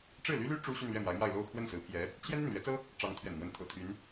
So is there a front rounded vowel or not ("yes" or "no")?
yes